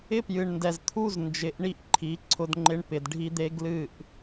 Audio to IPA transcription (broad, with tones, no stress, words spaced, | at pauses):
ɪ˦pjɨ˨ɳndɛ˨zt̪ʰu˦z nd͡ʒɪ˨˦ʔɳi˦ʔ ǃʰi˨˦ ǀʰʊ˦dŋ͡ǃɪ˦ɳ pɪ˨dɖʱi˦d̪e˦ ɡlɨ˦˨ʔ